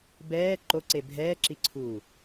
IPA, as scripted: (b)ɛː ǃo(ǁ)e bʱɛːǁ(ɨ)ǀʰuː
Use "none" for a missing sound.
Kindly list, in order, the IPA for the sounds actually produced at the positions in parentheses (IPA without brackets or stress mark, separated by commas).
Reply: b, ǀ, i